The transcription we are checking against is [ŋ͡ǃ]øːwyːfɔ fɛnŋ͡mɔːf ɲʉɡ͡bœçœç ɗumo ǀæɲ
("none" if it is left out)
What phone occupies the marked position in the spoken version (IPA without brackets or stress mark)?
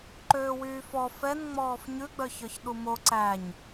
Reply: ǃ